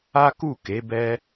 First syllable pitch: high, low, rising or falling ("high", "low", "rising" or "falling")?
high